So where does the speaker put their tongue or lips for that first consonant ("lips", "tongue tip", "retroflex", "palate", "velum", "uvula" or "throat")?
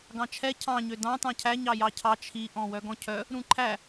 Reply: velum